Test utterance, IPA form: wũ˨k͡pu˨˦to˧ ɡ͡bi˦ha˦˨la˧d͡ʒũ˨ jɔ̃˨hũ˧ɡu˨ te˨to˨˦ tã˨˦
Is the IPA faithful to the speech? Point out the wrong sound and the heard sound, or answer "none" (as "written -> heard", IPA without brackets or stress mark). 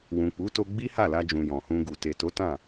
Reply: ã˨˦ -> ã˦˨